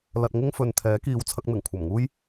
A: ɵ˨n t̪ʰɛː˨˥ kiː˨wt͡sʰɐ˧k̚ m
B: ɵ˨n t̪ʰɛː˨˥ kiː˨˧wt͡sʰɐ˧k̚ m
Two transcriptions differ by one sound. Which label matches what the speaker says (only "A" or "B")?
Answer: B